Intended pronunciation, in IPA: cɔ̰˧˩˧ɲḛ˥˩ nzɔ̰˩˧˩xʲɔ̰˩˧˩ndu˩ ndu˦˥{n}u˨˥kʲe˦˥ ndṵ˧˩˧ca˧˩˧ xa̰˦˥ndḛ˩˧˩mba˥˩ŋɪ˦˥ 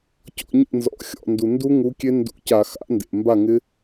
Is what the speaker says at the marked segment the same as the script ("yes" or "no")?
no